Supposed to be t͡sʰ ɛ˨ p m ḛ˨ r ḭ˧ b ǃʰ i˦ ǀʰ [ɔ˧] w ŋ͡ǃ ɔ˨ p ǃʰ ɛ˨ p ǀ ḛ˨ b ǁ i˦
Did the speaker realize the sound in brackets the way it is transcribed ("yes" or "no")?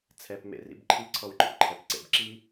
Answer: yes